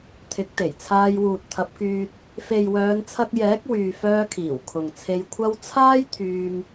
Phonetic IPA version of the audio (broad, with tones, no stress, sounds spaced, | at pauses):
t̪ʰ ɪ˨˥ k̚ t̪ e˨˩ j t͡sʰ aː˧ j w uː˨ t̚ t̪ʰ ɐ˨˥ p̚ k yː˧ t̚ | f e˨ j w œː˨˧ n t͡sʰ ɐ˧ k̚ j ɛː˨˥ k̚ w yː˨ f œː˧ kʰ iː˨˩ w kʰ ʊ˨ ŋ t͡sʰ e˧ j kʷʰ ɐ˧ w t͡sʰ aː˥ j t̪ʰ yː˧ m